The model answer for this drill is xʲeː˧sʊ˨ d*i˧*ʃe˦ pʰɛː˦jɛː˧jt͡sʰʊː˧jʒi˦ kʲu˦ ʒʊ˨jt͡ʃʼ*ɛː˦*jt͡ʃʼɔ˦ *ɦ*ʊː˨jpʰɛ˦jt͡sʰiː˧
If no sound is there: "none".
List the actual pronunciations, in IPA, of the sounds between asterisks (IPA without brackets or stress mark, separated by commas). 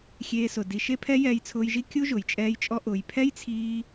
i˧, ɛː˦, ʔ